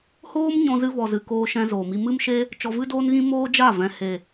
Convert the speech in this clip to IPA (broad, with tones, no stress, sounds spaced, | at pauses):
h oː˦ m ɲ ɔ̃˧ z ɨ˧ v ɔ˨ z ɨ˨ k oː˧ ʃ ɛ̃˧ z oː˨ m i˧ m ɨ˦ m ʃ e˦ | t͡ʃ ɔ˧ v ɨ˦ d oː˦ n ɣ ĩ˦ m oː˦ d͡ʒ a˦˨ v ɛ̃˨ h e˨